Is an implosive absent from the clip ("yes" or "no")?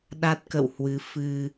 no